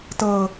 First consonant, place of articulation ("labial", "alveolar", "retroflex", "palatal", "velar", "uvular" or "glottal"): alveolar